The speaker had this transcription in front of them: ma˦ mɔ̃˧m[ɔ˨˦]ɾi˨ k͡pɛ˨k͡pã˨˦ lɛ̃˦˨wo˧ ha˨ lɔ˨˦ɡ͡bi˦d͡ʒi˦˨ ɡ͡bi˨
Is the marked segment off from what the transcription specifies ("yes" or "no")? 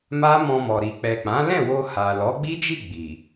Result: yes